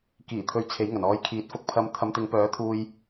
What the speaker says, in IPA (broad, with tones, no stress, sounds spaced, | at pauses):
k iː˨˩ t̪ʰ ɵ˨˧ ɥ t͡sʰ e˨˥ j ŋ ɐ˨˩ n ɔː˧ j kʰ iː˨˥ t̚ f ʊ˧ k̚ pʰ ɐ˧ m t̪ʰ ɐ˨˧ m t̪ ɪ˨˧ ŋ p œː˨˥ t̪ʰ uː˧ j